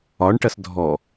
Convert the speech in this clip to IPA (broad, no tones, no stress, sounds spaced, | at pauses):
ɒ ɳ ʈ ɐ s dʱ ɔ